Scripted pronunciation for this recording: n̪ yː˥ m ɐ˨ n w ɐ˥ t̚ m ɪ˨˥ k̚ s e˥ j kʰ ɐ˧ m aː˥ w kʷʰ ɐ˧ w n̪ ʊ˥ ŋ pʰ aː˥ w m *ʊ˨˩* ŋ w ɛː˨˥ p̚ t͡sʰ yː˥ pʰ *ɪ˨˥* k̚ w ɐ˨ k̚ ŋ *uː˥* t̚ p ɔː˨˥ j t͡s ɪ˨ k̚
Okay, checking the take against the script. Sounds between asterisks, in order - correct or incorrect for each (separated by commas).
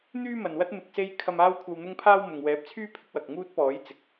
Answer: incorrect, incorrect, correct